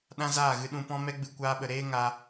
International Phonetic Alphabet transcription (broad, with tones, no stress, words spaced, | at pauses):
ɗã˦zaː˦˨ɣɨ˧ ɗũ˨ pɔ̃˦ mɛ˦ɡ͡bɨ˧kʷaː˧ɓə˨ ɾeː˦ ŋa˧